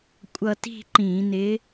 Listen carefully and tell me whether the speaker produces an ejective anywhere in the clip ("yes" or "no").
yes